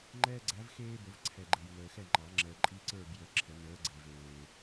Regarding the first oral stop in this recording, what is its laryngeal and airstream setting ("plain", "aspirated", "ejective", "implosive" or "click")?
click